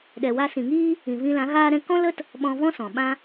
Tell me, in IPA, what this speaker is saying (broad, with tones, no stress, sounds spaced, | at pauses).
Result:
ɗ ɛ˨ w a˧ s ĩ˨ ŋ iː˦ | ĩ˨ v ĩ˧ l ã˨˦ ɣ aː˦ ɾ ɛ̃˦ k ɔ̃˦ l ə˦ t | ɓ ɔ̃˧ v ɔ̃˦ s ɔ̃˨ ɓ ã˦